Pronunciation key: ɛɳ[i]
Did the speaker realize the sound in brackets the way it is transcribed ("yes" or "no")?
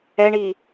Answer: yes